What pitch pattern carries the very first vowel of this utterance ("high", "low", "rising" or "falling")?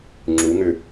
rising